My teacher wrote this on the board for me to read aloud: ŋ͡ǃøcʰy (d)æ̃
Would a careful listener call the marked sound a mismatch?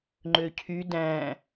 no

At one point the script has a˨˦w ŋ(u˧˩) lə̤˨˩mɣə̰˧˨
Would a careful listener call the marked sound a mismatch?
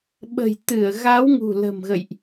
yes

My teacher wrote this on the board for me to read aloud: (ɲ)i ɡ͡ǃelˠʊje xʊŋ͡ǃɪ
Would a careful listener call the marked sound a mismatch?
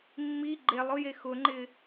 yes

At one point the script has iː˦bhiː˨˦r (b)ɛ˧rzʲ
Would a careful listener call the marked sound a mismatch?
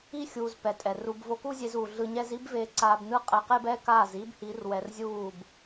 yes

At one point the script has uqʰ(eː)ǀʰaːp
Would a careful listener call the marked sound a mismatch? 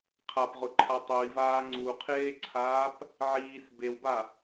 no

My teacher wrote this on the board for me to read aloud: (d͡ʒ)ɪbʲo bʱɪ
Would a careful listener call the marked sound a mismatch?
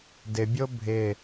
yes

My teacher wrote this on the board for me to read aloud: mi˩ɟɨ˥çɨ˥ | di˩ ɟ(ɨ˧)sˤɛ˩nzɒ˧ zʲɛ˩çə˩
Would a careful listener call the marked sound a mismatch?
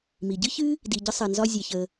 yes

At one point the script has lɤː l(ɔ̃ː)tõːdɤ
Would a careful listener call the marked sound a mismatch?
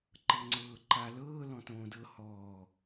yes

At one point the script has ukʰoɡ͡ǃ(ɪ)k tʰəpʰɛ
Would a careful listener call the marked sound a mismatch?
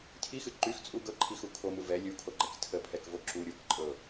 yes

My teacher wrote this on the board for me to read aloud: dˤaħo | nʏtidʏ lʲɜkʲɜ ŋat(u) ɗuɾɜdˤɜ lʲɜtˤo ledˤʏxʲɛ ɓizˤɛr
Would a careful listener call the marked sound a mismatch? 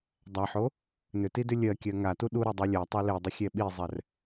no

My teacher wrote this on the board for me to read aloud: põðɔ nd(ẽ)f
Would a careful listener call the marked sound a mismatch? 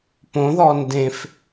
no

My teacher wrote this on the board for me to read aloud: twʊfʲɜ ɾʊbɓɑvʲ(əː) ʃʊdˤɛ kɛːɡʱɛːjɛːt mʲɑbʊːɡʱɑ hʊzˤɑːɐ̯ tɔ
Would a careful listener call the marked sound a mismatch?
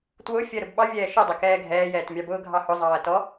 yes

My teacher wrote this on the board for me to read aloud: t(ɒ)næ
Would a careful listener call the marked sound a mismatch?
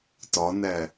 no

